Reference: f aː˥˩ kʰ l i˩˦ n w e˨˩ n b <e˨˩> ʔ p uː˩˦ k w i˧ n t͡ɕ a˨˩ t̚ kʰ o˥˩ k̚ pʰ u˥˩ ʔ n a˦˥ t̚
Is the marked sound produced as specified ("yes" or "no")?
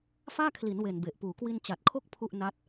yes